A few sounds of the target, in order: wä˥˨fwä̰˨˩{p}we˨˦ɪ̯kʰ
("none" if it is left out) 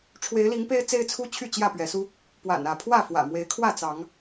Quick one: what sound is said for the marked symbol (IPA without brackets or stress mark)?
m